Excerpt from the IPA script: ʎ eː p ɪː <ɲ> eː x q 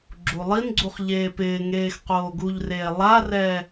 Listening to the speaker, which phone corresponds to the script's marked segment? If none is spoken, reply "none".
ŋ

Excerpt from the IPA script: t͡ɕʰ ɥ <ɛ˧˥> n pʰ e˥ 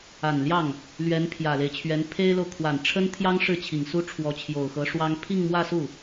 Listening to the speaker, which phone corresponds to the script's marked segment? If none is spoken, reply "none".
ɛ˧˥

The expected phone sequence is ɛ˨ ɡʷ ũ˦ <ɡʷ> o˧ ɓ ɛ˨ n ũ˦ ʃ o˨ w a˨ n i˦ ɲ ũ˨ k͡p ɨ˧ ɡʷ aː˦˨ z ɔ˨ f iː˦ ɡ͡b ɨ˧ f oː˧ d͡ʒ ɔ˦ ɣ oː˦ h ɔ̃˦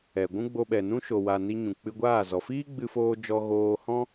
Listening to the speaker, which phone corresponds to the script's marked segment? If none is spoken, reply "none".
ɡ͡b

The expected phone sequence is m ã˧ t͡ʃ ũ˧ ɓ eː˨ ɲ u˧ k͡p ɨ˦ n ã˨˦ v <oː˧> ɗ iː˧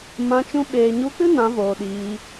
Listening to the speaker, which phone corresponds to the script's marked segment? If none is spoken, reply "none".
oː˨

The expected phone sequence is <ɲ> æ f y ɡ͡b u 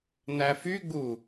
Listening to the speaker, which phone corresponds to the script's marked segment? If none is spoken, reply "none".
n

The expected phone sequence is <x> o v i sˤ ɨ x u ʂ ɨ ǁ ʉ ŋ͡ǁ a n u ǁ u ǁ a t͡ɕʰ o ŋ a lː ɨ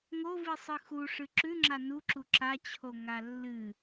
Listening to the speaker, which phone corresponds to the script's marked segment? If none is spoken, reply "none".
ŋ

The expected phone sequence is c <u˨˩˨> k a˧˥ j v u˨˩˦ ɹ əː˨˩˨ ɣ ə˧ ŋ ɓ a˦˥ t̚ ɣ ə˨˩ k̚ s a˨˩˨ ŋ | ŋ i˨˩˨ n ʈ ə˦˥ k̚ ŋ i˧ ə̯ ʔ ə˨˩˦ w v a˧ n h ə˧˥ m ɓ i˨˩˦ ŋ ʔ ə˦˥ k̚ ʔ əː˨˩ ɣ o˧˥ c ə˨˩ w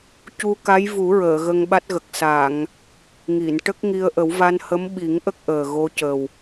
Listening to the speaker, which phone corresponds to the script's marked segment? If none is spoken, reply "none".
u˧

